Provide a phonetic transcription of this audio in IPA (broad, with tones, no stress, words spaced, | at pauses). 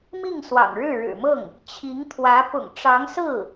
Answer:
mi˥˩ŋswɑ̰˨˩ŋɻɻ̩˥˩ ɻɻ̩˨˩mɤ˥˩ŋ | t͡ɕʰi˧˥ŋt̪ʰwä˧˥ pʊ̰˨˩ŋʈ͡ʂɑ˧˥ŋsɹ̩˥˩